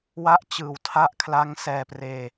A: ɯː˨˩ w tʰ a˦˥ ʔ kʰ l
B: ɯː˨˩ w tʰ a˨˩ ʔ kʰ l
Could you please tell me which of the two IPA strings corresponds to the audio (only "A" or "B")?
A